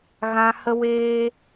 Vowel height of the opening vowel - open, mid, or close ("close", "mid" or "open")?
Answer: open